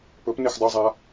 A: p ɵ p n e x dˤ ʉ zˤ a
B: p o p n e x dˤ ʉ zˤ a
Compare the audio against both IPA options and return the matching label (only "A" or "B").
A